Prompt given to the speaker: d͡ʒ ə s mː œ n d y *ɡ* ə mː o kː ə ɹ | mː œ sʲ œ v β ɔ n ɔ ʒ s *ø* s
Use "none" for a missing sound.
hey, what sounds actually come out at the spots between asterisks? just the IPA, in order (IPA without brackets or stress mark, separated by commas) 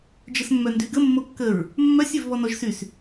ɡ, y